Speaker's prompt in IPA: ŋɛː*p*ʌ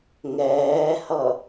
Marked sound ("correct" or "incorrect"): incorrect